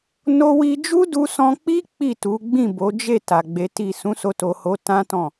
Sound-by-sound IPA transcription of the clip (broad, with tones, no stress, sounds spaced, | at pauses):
n o˧ w i˧ d͡ʒ u˦ d u˧ s ɔ̃˧ k͡p i˦ k͡p i˦˨ t u˨˦ ɡ͡b ĩ˦˨ b o˨˦ d͡ʒ e˦˨ t a˨ ɡ͡b e˨˦ t i˦˨ s ũ˨˦ s o˧ t o˨ h o˨˦ t ã˦ t ɔ̃˦˨